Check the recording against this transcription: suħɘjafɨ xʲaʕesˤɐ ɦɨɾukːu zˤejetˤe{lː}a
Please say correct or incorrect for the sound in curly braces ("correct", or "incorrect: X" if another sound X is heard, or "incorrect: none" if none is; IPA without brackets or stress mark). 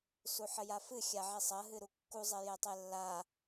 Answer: correct